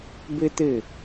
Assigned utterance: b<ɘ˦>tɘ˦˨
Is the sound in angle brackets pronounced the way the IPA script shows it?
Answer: yes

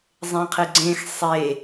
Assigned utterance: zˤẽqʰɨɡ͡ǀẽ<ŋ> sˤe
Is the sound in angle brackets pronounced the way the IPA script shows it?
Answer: no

